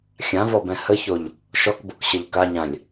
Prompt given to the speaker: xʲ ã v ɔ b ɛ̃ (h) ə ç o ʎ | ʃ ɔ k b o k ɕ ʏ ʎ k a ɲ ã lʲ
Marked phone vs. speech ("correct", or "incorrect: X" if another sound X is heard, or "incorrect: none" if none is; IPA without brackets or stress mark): correct